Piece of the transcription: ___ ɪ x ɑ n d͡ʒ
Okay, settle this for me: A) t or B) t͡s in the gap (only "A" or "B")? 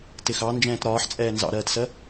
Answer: A